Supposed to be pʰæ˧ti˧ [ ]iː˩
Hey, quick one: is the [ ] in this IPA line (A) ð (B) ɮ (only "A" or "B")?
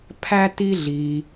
B